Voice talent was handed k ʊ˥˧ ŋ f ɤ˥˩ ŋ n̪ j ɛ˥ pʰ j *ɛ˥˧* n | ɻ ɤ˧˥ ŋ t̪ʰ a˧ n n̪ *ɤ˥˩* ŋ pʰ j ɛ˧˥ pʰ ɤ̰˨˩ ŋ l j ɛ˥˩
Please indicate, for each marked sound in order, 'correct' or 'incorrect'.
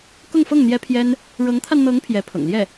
incorrect, incorrect

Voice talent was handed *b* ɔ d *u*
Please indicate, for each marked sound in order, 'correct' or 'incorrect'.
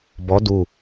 correct, correct

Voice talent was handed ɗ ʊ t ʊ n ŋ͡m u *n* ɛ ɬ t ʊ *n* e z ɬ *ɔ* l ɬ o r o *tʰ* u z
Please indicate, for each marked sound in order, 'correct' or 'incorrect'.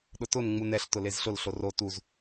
correct, incorrect, incorrect, incorrect

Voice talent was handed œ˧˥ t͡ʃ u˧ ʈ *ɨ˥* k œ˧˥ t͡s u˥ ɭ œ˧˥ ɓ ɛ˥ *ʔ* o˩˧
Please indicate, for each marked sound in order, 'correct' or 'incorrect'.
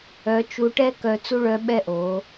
incorrect, correct

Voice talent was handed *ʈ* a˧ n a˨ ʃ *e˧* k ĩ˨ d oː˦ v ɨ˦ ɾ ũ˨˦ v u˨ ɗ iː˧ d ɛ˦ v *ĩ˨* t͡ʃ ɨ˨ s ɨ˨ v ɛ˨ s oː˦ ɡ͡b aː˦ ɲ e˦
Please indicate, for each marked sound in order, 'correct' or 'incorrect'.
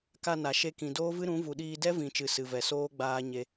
incorrect, correct, correct

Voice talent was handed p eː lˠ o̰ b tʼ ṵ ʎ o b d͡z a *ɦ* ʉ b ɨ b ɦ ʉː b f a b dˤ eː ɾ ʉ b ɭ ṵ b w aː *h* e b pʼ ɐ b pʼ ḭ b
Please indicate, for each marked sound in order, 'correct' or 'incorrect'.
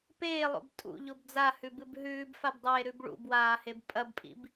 incorrect, correct

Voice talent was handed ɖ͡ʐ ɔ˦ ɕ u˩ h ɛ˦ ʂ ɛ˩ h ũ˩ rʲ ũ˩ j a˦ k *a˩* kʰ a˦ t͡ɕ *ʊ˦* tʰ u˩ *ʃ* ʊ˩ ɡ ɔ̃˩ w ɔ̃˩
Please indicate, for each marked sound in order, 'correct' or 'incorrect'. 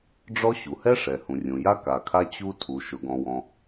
correct, incorrect, correct

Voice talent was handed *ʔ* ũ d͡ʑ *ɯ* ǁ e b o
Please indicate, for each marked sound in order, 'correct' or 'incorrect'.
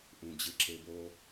correct, correct

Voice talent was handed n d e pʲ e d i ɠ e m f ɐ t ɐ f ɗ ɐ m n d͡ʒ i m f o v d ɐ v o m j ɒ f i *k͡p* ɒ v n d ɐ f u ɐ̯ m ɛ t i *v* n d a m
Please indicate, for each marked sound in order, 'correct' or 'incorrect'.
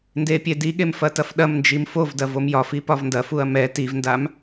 incorrect, correct

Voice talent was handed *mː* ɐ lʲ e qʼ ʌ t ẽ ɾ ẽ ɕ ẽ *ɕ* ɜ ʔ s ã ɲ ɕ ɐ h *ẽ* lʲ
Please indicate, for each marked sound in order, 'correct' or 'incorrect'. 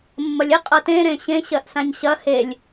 correct, correct, incorrect

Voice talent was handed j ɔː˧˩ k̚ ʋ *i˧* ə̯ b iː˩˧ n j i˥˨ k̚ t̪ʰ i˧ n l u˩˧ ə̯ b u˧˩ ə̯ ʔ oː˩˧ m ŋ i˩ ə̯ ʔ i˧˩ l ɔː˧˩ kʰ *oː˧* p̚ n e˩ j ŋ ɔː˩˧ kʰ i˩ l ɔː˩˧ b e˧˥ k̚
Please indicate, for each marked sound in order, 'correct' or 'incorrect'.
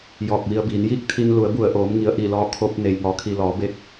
correct, incorrect

